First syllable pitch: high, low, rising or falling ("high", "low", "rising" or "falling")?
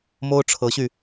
high